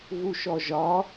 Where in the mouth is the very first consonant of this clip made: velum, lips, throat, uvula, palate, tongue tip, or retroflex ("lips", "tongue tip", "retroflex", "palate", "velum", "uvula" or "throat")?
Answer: velum